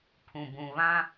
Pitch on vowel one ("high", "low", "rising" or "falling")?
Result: low